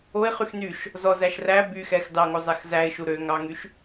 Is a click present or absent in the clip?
absent